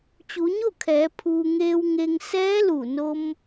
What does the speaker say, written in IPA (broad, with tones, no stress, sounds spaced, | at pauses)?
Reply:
t͡ɕ u˩˧ ɲ o˥˨ kʰ ɛː˩˧ pʰ uː˩ ŋ eː˧ w ŋ e˧ ŋ s ɛː˧˥ l u˧˩ n o˧ m